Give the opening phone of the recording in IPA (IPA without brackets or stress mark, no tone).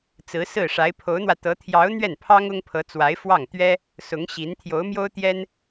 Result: t͡s